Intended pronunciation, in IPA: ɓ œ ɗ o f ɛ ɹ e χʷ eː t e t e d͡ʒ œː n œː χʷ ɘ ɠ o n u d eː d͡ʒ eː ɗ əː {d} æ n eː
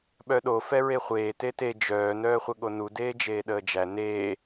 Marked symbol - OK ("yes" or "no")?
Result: no